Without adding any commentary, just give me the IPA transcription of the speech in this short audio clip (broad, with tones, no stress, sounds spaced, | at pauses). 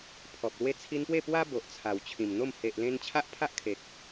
pʰ ɔ˨ p̚ l w e˧ t͡sʰ i˧ n p w e˥˧ p w a˦ b o˨ ʔ t͡sʰ a˨˩ w t͡ɕʰ ĩ˨˩ m n̪ o˥˧ m h e˨ ʔ l ẽ˧ n t͡ɕʰ a˦ ʔ pʰ a˦ ʔ kʰ e˨ k̚